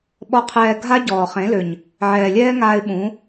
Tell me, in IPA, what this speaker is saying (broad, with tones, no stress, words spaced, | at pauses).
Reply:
ɓɔ˧qʰɛː˧ɡʱa˦ ɟɔː˨χẽ˨˦lø˨ɲ | ʕɛː˨lʲɛː˦ŋaː˧ɪ̯ ɓũ˨˦